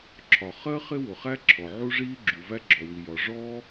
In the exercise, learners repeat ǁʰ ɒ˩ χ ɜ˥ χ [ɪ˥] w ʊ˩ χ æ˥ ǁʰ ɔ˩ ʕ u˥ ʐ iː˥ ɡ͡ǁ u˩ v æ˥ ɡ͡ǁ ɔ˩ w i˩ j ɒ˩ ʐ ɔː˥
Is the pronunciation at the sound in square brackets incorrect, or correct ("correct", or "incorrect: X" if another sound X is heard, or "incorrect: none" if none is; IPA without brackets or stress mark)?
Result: correct